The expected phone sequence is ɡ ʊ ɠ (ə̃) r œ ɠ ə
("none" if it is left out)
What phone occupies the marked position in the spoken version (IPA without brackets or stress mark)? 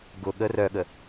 ə